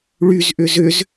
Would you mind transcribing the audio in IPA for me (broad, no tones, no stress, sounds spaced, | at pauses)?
ɭ y z ʔ ʏ z ʏ z